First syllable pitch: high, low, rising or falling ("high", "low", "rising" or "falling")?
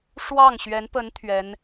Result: falling